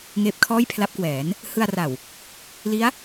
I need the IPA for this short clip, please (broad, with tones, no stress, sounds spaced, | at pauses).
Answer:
ŋ eː˦˥ p̚ kʰ ɔː˥˩ j pʰ l a˦˥ p̚ k w ɛː˩˦ n | h ɯ˧ a̯ r a˨˩ w | l i˦˥ a̯